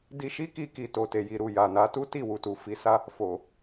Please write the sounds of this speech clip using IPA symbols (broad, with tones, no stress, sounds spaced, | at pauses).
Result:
d i˧ ʃ i˦ k i˧ k i˨ t o˨ t e˨ j i˨ ɾ u˨ j a˨ n a˨˦ t u˦ t i˦˨ w u˨ t u˨ f i˨˦ s a˦ | f o˨